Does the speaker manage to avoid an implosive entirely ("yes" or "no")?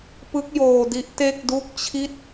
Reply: yes